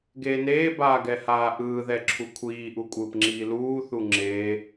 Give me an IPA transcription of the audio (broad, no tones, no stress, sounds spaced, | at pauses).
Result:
ɡ eː n eː b aː ɡ ɛ h aː ʔ ɯː ð ɛ ǁʰ u kʷʰ iː ʔ u kʷʼ ɯː p ŋ͡ǁ iː l uː θ u ŋ͡ǁ e